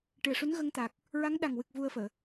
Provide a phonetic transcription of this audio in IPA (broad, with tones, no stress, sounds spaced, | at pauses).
ʈ ɨ˨˩ ə̯ ʂ u˧˥ n ɣ ə˧ ŋ t̪ a˨˩ k̚ | ɹ a˧˥ ŋ ɗ a˨˩ ŋ w ɨ˨˩ k̚ v u˧ ə̯ f əː˨˩˨